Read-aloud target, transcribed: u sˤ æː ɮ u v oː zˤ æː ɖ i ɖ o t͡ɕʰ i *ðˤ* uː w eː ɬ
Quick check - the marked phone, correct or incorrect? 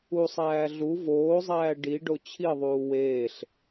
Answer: correct